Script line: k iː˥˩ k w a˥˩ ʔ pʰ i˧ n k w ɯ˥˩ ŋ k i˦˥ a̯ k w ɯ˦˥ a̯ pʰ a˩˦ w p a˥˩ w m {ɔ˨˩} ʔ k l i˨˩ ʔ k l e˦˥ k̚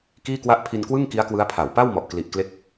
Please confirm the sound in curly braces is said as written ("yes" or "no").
yes